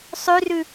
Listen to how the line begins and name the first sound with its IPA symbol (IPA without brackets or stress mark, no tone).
sˤ